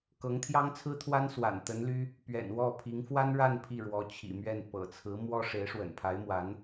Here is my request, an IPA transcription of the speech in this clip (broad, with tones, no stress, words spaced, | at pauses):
kɤ˧˥ŋt̪ʰjɑ˥ŋt͡sʰɹ̩˥t̪ʰwa˥n swa̰˨˩nt̪ə˧˥nly˥ | pɥɛ̰˨˩nwɔ˥˩pʰi˧˥ŋ fwa˥nɻa˥˧n pʰi˥˩ɻwɔ˧˥ t͡ɕʰḭ˨˩mɥɛ˥˩n pɤ̰˨˩t͡sʰɹ̩˧˥ mwɔ˥ ʂe˧˥ɪ̯ʂwə̰˨˩npʰa˧˥ɪ̯ mwa˧˥n